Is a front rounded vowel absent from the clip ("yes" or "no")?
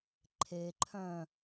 no